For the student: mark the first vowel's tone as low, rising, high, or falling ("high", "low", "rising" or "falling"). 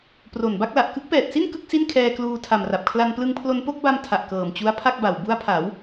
low